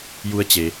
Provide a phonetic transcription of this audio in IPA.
j u˧˥ ə̯ t͡ɕ e˩

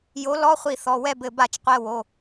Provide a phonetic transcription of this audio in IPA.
j o˨˥ l ɔ˧˥˧ χʷ i˧˩ θ ɔ˩˧˩ w ɛ˥˨ b ɘ˧˩ b a˥˨ t͡ʃ qʷ ɛ˧˥˧ w o˩˧˩

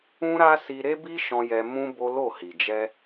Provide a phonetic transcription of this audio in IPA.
ũ˦ ɾ a˦ s i˧ ɾ e˦ b i˦ ʃ ɔ̃˧ j ɛ˧ m ũ˦ b o˦ l o˦˨ h i˨ d͡ʒ ɛ˧

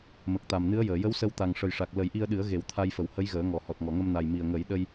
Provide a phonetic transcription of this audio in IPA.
m ə˨˩ k̚ t̪ a˨˩ m n ɨ˧˥ ə̯ j əː˨˩˨ j ə˧˥ w s ə˧ w t̪ a˨˩ ŋ ʂ ə˨˩ j ʂ a˨˩ k̚ l ə˨˩˦ j ʔ i˧ ə̯ ɗ ɨ˨˩˦ ə̯ ɣ e˨˩˦ w t̪ʰ a˧ j f ə˨˩˨ w h ə˧˥ j ɣ əː˨˩˦ ŋ ɔ˨˩˨ h ɔ˨˩ t̚ ŋ ɔ˨˩˨ ŋ ə˧ m n a˨˩ j m i˨˩ ə̯ ŋ ə˨˩˦ j ɗ ə˧ j

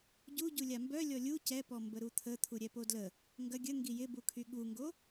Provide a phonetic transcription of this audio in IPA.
ɟ u ɟ u lʲ a m b œ lʲ ɔ lʲ u c ɛ p ɔ m b ə ɾ u t̪ʰ ə t̪ʰ u ɾʲ ɛ p o d l ə | ŋ ɡ ɐ ɡʲ ə ŋ ɡ i j ɪ b u kʰ y ɠ u ŋ ɡ o

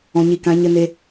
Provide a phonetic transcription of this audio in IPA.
ɔ̃˨ ɲ i˨ k ã˨˦ ɲ ə˦ n e˧

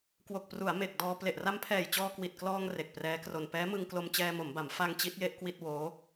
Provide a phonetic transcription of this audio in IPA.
k w o˨˩ k̚ p r u˩˦ a̯ m e˨˩ k̚ d ɔː˧ p l e˨˩ ʔ r a˧ m pʰ ɛː˨˩ j t͡ɕ ɔː˧ k w i˨˩ t̚ k l ɔː˧ ŋ r e˨˩ k̚ p r ɛː˦˥ k r o˧ n p ɛː˦˥ m ɯ˧ ŋ k l o˧ m t͡ɕ ɛː˧ m o˩˦ m b a˩˦ m f a˧ ŋ t͡ɕ i˦˥ t̚ j e˥˩ ʔ k w i˥˩ t̚ w oː˦˥

